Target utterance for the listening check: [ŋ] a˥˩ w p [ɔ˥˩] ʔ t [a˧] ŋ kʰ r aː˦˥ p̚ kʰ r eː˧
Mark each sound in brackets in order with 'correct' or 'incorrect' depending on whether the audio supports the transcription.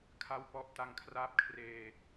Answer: incorrect: kʰ, correct, correct

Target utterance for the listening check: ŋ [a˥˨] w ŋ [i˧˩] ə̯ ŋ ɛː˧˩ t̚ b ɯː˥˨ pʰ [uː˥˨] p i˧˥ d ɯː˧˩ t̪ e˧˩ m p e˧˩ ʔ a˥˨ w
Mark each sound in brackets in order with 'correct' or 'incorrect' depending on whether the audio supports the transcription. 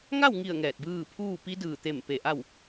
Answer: correct, correct, correct

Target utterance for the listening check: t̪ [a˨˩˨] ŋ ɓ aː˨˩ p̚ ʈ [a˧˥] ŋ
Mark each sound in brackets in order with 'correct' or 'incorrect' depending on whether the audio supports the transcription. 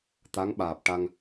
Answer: incorrect: a˧˥, incorrect: a˧

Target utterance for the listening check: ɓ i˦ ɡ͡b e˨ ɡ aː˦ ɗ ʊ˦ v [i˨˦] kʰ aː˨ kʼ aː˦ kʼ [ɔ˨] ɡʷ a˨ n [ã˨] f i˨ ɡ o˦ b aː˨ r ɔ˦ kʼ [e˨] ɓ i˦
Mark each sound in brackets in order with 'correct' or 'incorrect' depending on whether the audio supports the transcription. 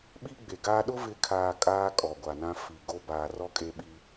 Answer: incorrect: ɪ˨˦, correct, incorrect: ã˦, incorrect: e˦

